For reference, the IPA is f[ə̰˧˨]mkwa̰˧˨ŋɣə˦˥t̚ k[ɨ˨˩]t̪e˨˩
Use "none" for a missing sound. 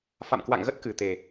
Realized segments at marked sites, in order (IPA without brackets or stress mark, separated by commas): a̰˧˨, ɨ˨˩